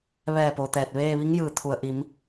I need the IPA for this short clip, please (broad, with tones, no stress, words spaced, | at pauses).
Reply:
ʋɛː˧˩po˩ t̪ɛː˧˩t̚ʋeː˥˨ ʋi˧˥ŋjɯː˩ t̪ʰu˩ə̯ʔi˩˧m